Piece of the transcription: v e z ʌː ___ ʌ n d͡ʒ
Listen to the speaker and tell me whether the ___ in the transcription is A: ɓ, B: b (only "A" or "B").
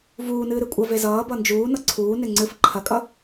B